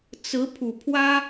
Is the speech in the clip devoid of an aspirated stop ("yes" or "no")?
no